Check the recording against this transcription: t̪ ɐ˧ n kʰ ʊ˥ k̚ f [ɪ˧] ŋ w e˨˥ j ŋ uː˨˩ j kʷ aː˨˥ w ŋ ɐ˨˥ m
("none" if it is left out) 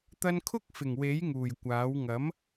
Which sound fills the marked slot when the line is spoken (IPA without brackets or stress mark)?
ɪ˨˩